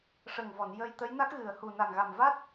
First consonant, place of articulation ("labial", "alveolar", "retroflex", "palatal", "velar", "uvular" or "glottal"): retroflex